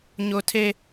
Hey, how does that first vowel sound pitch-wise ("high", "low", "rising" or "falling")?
high